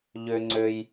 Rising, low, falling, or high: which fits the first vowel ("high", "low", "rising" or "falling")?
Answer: low